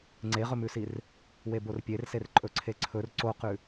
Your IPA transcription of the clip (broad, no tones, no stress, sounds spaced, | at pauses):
ŋ͡ǀ e ʁ ɵ m ʉ s i r | w e b o r pʲ e r s e r ǃʼ ɵ ǀʰ e ǀʰ ɵ r ǀ o q ʉ